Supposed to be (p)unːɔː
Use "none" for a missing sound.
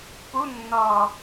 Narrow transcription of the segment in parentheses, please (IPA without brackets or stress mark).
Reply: p